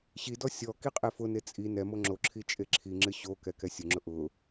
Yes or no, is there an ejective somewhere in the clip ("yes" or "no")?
yes